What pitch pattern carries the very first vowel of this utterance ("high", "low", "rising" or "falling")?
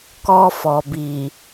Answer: high